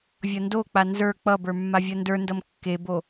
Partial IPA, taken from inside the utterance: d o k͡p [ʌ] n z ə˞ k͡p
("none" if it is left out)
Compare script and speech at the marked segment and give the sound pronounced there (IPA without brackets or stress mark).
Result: a